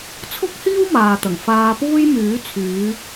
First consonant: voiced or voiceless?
voiceless